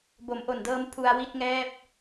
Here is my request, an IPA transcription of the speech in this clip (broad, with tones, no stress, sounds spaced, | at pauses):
b o˩˦ m ʔ o˨˩ n d ɤː˦˥ m pʰ u˧ a̯ w i˥˩ t̚ ŋ ɛː˥˩ p̚